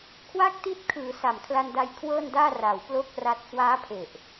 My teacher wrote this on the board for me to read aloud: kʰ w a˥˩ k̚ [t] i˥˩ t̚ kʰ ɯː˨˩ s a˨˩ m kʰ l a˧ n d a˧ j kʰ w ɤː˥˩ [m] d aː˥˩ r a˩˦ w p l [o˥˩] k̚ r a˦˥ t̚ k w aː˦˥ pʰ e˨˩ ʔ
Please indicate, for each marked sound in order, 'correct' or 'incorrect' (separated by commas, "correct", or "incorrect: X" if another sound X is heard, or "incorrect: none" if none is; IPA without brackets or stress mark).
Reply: correct, incorrect: n, correct